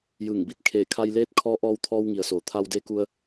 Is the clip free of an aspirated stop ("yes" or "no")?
no